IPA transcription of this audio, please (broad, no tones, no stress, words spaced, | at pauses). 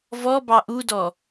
vɔ bɑʔudɔ